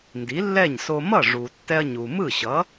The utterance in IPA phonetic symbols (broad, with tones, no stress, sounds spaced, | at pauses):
n d i˩˥ lː ɛ˥˩ ɲ s o˧ m ʌ˥˩ ʐ u˩ tː ɛ˧ ɐ̯ ɲ u˩ m ɯ˥˩ ɕ ʌ˩˥